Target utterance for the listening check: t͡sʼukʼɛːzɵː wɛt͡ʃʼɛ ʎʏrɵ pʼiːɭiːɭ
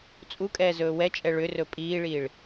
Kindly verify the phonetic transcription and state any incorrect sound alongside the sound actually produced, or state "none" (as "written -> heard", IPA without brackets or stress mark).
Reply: ʎ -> ɭ